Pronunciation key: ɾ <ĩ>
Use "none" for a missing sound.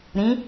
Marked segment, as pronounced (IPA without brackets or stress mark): ĩ